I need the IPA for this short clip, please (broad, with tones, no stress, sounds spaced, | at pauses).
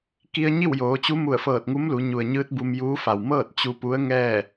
k i˧ ə̯ ɲ i˥˨ w j oː˩˧ t͡ɕ u˧˥ m u˧˩ ə̯ f ɤː˧˩ t̚ ŋ u˧˥ m l u˩˧ ɲ u˩ ə̯ ɲ ɯː˧˥ t̚ b u˧ m j uː˧˥ f a˩ w m ɤː˥˨ t̚ t͡ɕ u˧ p u˧˥ ə̯ ŋ ɛː˥˨